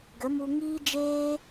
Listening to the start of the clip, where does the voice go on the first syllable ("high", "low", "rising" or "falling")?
rising